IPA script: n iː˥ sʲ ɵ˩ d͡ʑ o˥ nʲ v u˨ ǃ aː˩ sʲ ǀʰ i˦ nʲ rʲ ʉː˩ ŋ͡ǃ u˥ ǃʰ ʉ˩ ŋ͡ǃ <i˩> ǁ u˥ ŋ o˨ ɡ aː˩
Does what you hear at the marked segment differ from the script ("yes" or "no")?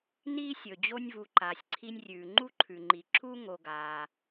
no